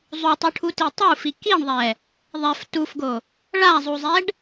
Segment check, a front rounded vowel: absent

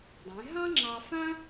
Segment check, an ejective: absent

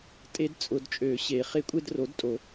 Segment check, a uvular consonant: present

